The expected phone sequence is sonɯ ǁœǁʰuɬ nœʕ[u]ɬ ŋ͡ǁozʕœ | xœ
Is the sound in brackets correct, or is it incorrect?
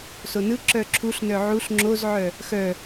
correct